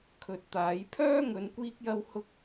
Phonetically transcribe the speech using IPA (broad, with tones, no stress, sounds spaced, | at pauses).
kʰ ɵ˨ t̚ t̪ aː˨˧ j pʰ œː˥ ŋ ɵ˧ n kʷ iː˥ k̚ j ɐ˥ w h ʊ˥ k̚